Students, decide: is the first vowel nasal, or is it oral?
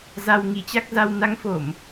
oral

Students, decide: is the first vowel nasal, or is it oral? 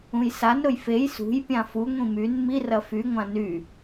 nasal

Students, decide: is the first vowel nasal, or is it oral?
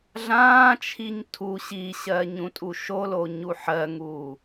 nasal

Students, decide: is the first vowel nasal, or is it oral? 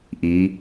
oral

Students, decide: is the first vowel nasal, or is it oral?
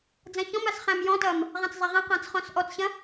nasal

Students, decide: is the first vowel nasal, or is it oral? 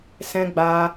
nasal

